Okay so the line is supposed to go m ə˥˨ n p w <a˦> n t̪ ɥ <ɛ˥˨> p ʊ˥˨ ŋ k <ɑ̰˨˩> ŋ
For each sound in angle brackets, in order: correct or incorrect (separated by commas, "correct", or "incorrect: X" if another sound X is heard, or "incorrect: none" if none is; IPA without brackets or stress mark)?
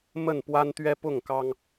correct, incorrect: ɛ˦, incorrect: ɑ˦